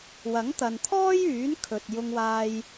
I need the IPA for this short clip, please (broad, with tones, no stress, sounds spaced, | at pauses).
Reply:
w ɐ˨˥ ŋ t̪ ɐ˨ n t̪ʰ ɔː˥ j yː˨˥ n kʰ ɵ˨ t̚ j ʊ˧ ŋ w aː˧ j